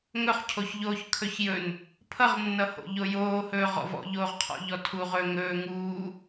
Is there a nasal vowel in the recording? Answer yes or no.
no